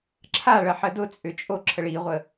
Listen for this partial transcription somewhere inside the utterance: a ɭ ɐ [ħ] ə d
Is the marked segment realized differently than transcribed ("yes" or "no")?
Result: no